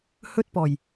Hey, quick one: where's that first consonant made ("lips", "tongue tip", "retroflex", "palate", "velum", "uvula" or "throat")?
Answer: throat